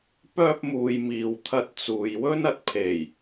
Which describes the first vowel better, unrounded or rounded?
rounded